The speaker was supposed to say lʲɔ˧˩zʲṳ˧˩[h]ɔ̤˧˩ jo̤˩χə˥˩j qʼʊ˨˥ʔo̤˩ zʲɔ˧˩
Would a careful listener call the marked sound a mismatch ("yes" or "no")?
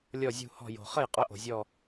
no